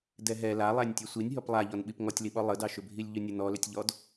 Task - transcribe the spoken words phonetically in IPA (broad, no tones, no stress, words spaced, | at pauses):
dɛɦɛ lalˠænʲ tʲɛsʷinʲɦɔp lˠaʎɔnɓip ŋɔtʲliɓɔ lˠədɑʃʏ bʱilʲʎʏnʲən ɔlʏtʲʎɔd